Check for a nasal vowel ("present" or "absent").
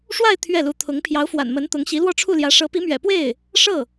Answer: absent